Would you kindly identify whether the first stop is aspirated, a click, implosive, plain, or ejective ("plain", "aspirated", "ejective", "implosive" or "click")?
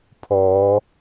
aspirated